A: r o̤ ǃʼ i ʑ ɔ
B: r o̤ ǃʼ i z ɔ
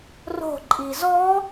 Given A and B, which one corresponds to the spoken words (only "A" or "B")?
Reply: B